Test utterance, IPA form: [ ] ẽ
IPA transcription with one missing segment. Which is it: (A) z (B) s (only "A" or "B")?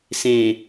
B